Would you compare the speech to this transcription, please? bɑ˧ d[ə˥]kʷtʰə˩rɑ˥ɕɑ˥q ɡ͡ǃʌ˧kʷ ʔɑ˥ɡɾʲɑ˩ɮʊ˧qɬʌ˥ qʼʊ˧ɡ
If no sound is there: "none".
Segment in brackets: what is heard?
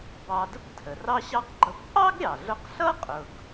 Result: ə˥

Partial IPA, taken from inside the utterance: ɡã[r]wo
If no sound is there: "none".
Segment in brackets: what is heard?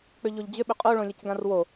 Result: r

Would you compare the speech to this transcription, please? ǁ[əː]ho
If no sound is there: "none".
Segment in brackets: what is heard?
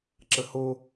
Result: ə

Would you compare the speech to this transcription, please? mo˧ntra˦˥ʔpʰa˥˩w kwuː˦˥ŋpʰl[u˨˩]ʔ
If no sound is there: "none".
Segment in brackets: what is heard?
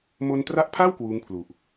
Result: u˨˩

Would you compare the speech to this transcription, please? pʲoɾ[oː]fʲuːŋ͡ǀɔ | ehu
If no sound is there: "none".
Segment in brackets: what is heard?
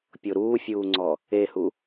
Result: uː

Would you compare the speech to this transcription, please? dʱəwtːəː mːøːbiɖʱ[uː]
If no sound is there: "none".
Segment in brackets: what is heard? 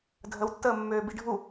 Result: u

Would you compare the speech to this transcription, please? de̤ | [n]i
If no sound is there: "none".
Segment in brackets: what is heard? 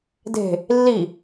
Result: lː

